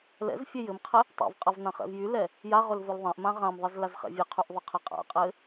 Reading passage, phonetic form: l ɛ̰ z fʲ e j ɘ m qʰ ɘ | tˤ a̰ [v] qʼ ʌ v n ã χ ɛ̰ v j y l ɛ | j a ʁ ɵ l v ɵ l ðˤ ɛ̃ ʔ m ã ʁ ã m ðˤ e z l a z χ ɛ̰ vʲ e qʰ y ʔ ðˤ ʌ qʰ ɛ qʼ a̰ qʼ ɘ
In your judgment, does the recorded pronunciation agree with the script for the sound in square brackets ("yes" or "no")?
yes